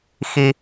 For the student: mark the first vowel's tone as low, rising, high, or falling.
high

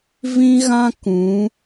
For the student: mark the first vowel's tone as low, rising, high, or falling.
high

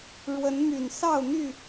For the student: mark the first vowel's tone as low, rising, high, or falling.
rising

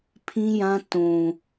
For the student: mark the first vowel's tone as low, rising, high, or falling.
high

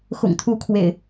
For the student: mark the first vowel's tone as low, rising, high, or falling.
low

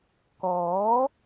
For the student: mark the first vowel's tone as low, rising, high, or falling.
rising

